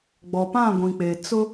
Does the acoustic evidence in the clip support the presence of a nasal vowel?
yes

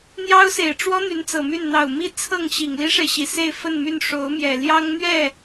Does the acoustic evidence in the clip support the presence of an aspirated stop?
yes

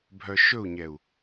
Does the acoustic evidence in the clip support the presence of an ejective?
no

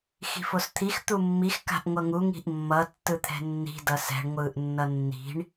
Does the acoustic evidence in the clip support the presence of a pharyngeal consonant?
no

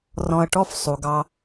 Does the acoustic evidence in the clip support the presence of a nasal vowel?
yes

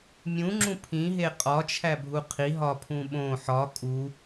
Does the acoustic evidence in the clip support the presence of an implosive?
yes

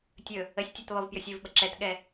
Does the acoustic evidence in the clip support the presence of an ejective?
no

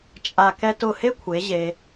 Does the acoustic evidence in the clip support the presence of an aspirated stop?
yes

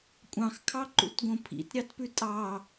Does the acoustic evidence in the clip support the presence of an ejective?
yes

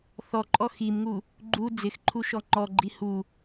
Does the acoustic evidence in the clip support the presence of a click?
yes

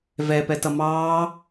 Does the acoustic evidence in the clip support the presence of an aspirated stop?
no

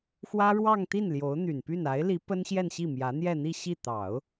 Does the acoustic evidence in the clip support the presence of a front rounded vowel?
yes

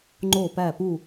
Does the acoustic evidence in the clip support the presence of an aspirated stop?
no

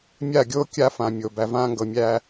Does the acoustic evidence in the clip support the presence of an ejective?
no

